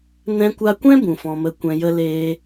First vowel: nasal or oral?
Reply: nasal